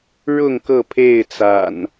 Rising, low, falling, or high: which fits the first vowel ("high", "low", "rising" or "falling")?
falling